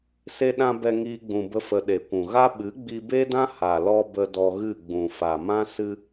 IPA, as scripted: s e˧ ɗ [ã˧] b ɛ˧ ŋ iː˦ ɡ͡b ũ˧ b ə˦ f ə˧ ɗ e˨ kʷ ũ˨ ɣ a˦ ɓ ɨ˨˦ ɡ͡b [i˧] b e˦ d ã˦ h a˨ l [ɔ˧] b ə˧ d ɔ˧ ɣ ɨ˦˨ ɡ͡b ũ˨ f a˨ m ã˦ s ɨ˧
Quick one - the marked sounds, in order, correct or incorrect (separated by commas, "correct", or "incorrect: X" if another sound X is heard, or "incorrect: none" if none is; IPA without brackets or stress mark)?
correct, correct, correct